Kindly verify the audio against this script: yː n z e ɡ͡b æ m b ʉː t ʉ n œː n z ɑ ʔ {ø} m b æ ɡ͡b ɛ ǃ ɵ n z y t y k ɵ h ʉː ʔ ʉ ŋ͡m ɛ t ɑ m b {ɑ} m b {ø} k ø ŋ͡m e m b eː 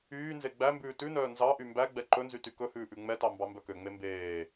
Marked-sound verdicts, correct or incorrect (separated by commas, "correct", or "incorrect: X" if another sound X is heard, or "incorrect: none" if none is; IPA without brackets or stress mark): incorrect: y, correct, incorrect: œ